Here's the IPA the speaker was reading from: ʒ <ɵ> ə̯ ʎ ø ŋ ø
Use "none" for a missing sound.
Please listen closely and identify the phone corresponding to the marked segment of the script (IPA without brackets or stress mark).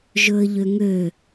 ɵ